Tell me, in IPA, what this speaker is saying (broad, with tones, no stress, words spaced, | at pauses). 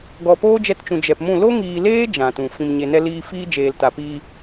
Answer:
ɡɔ˨poː˦d͡ʒɛ˧tt͡ʃũ˨ d͡ʒɛ˨pmũ˦˨ lo˦ŋiː˨leː˦ d͡ʒã˨tũ˨ fĩ˨mɲe˨nɛ˧ liː˧fiː˦ d͡ʒeː˨lta˨piː˧